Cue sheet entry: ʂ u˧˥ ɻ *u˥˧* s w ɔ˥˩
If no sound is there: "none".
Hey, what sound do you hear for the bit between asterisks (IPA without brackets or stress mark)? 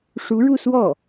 u˥˧